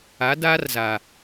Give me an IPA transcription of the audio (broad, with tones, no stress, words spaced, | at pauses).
a˨˦daː˦rza˨